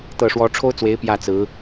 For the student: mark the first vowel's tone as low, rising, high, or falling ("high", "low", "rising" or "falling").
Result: falling